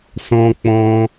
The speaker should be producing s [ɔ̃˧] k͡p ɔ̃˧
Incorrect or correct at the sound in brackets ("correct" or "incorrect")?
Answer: correct